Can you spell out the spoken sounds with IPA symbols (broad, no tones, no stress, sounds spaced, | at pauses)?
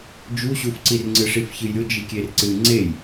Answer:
d͡ʒ u ɕ u f ǀ i r ŋ͡ǀ ɨ ʂ i f ç ɨ j ɾʲ o d͡ʒ i kʲ e r ǀ ɨ ŋ͡ǀ e j